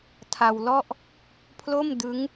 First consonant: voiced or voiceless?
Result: voiceless